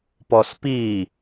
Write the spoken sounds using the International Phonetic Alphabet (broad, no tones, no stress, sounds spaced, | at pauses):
p ɔ s p i